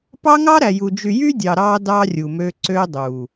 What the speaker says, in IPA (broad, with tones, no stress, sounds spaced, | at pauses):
p ɑ˦ ŋ ɑ˦ ɾ æ˨ j u˨ d͡ʒ y˨ j y˦ dʲ ɑ˨ ɾ ɑ˦ d ɑ˦ rʲ u˨ m ø˦ ǀ ø˦ dˤ u˨